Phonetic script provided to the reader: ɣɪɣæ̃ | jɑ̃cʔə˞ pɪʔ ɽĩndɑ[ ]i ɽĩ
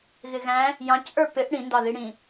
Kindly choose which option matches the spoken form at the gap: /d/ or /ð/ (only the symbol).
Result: ð